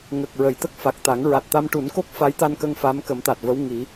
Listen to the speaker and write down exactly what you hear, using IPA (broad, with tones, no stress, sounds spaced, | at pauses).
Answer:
ŋ ə˨˩ k̚ ɹ ə˨˩˨ j t̪ ə˦˥ k̚ f a˨˩ k̚ t̪ a˨˩˦ ŋ ɹ a˨˩ t̚ t̪ a˧ m ʈ u˨˩˦ n k o˦˥ k̚ f a˧˥ j t̪ a˧ n k ə˧ ŋ f a˧˥ m k ə˨˩˦ m t̪ a˨˩ t̚ v ə˧˥ w ŋ i˨˩˦